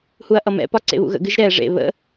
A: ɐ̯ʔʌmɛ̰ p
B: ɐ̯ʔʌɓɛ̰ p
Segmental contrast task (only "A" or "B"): A